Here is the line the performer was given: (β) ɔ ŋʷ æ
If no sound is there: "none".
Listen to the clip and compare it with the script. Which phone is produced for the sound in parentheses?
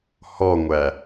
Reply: h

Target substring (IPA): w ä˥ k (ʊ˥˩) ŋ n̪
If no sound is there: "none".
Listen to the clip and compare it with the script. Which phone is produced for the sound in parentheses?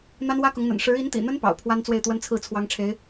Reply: ʊ˧˥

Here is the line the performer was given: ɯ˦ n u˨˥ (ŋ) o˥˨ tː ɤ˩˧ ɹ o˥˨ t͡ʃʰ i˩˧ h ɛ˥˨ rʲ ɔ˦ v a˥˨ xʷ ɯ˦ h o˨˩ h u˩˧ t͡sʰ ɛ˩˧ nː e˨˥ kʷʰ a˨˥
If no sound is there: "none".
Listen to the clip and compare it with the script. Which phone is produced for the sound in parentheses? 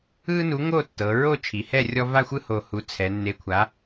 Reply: ŋ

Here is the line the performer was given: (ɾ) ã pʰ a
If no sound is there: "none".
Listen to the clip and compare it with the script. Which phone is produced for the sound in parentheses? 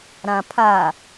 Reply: ɾ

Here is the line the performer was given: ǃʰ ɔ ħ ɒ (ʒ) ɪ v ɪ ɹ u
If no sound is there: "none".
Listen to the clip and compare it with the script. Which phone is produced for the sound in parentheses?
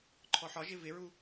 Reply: ʒ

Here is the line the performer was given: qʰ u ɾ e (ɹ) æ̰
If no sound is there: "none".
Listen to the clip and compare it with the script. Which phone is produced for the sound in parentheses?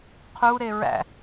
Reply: ɹ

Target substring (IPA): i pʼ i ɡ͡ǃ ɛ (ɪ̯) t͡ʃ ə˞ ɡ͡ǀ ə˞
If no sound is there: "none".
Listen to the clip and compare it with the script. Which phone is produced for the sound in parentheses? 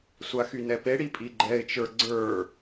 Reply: ɪ̯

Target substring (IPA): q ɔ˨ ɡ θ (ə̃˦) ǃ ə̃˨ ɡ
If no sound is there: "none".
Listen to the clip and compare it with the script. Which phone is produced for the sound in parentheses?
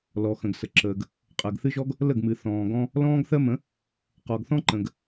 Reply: ɔ̃˦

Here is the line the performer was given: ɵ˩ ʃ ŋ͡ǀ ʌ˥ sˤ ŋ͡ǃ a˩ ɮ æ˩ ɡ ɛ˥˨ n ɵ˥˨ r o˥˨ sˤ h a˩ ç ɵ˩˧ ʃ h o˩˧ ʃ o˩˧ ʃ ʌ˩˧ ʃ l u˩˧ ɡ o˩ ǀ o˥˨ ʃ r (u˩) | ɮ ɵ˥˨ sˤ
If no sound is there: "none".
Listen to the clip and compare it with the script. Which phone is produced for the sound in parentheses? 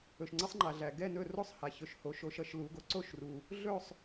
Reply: u˩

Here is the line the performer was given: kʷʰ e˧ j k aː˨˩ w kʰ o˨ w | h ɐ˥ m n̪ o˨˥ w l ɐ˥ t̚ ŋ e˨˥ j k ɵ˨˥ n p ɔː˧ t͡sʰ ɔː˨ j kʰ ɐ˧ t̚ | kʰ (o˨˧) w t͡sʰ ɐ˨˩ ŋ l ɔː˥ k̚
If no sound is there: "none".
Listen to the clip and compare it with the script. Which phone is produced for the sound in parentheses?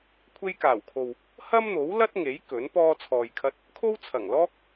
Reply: o˥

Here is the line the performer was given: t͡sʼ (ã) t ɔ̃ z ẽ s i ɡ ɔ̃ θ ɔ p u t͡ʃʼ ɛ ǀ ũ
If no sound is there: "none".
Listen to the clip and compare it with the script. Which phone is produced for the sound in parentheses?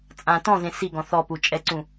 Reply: ã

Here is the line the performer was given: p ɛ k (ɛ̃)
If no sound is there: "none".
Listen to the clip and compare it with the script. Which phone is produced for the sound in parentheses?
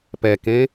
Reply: ẽ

